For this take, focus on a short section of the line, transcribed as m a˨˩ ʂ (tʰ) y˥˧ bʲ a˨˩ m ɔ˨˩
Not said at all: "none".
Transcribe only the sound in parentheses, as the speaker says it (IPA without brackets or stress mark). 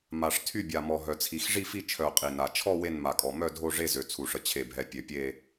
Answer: tʰ